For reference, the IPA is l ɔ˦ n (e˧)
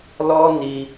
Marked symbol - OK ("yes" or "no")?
no